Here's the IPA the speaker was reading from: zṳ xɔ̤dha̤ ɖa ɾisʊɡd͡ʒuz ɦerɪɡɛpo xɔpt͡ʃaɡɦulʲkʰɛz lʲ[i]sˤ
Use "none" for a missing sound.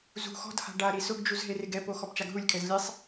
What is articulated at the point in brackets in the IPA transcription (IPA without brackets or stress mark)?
e